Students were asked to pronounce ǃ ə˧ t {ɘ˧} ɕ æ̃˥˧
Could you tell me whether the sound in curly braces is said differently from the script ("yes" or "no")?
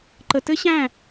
yes